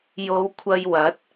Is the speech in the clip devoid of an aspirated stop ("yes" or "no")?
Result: no